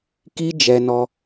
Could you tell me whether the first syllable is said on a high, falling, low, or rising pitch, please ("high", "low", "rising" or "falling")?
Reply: high